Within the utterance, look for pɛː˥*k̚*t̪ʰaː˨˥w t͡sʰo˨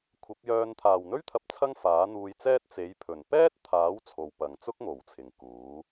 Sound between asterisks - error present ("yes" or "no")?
yes